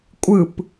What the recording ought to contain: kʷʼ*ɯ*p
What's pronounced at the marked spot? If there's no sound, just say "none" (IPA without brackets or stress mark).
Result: ɯ